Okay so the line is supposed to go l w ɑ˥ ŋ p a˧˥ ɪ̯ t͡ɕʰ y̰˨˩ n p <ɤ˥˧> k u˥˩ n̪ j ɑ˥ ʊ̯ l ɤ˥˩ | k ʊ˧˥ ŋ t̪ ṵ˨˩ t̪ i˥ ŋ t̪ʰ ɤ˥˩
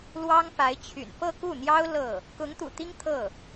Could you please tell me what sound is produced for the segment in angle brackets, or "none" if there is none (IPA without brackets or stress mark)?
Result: ɤ˥˧